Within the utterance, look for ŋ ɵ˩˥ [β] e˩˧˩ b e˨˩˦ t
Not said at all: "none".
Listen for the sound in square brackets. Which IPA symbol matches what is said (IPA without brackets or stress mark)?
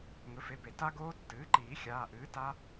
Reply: f